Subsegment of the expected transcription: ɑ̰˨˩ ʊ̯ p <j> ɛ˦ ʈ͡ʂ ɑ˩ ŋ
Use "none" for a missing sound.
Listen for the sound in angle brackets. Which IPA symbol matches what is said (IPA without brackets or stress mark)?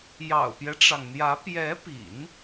j